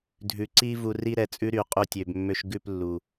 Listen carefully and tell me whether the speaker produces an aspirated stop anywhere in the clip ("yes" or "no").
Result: no